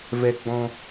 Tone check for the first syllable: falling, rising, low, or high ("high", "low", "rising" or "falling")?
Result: low